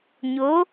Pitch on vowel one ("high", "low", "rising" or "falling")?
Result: rising